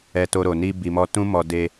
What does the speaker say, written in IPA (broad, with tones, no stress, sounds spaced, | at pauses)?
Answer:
ɛ˧ t o˧ ɾ o˨ n i˧ b i˨ m ɔ˧ t ũ˦ m ɔ˧ d e˧